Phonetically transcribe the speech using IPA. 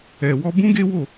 ɛ˨ w ɔ˧ b ũ˦ ɡ e˦ w o˦˨

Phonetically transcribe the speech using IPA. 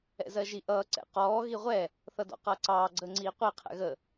ɛ̰ z ɜ ʒ i ʔ ʌː ǀ ɛ̰ q ɔː ɣ i ʁʷ ɛ | θ ʌ d ɔ̰ q ʌː ǀ ɑː ɡ͡ǀ əː ŋ͡ǀ iː qʷ i qʰ ɛ̰ ɣ ə

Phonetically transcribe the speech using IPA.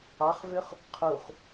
ɑ χ v ø χ | qʰ u χ

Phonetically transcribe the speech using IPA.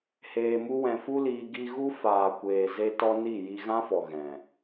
h eː˧ m u˦ w ɛ̃˧ f u˦ l iː˧ ɡ i˧ ɣ u˦ f aː˨ kʷ eː˨ z e˧ t ɔ˧ n i˦˨ j i˧ ɣ ã˦ f ɔ˨ ɣ ɛ̃˨

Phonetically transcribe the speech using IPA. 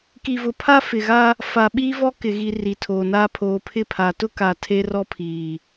k i˨ v ʊ˨ pʰ a˦ f ɪ˨ ɣ a˦ | f a˨ ɓ iː˦ v ɔ˦ k ɪ˨ ɣ i˨ r i˨ tʰ oː˨ n aː˦ pʰ oː˨ pʰ ɪ˦˨ pʰ a˨ t ʊ˦ k a˨ tʰ e˦ r ɔ˦ pʰ iː˨

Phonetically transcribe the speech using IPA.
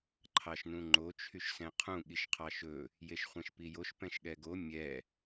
ǃʰ ɑ ʃ n ũ ŋ͡ǃ o t͡ʃʰ y ʃ s ɛ̃ qʰ ũ ɠ i ʃ qʰ ɑ ʃ ɵ | j e ʃ χʷ ɛ̃ ʃ p i j o ʃ p ɛ̃ ʃ ɠ ɛ ɡ o mʲ ɛ

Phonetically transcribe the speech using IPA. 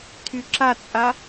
tʰ y ǁ a t͡sʼ a

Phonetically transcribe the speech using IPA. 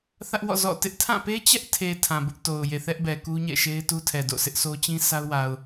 θ ä˦ ʔ w ɔ̰˦˨ z ɔ̰˦˨ t ɪ˦ ʔ tʰ ã˦˨ p e˦ t͡ɕ ɛ˦ ʔ tʰ e˨ tʰ ã˨ b ʊ˦ ʔ t o˨ ʊ̯ j e˨ θ ɛ˦ ʔ b ɛ˨ k u˦ ɲ ɛ̰˦˨ ʃ e˦ ɪ̯ t u˦ tʰ ɛ˨ d o̰˦˨ s ɪ˦ ʔ s o˦ t͡ɕ ĩ˦ sʰ a˦ ʊ̯ w a˨ ʊ̯

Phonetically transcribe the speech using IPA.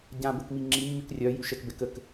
ɟ ã b ə k m i ŋ͡ǁ i mː y k rʲ œ j y ʃ ɛ k b ɛ k ə k

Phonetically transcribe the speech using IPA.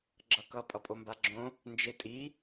ɡ͡ǁ ʌ k ʌ pʼ ʌ pʼ o m b a ɡ͡ǁ õ | n d͡ʒ e tʼ i

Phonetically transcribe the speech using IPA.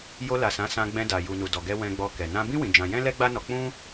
j o˧ l a˨ s ã˨˦ s ã˧ ɡ͡b ɛ̃˧ d a˨ j u˨ n u˨ d ɔ˨ ɡ ɛ˧ w ɛ̃˧ ɡ͡b ɔ˧ k ɛ˨ n ã˧ b ĩ˦ w ĩ˧ d͡ʒ ã˧ j ɛ̃˦ l ɛ˦ ɡ͡b a˦ n ɔ˧ k͡p ũ˦

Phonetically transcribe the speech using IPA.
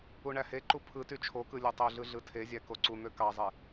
u ɳ æ h e ǃ u pʰ ɯ t y t͡ʃʰ o k ɯ lʲ o tˤ ø ɮ ɯ ɮ ɯ tʰ e zʲ æ k o ǀ u n̪ ø k ɑ zˤ e

